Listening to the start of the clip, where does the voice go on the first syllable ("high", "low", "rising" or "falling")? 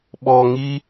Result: low